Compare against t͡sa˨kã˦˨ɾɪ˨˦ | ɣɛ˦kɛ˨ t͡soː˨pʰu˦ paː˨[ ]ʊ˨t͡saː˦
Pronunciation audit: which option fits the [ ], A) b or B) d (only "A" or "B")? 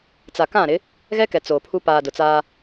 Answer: B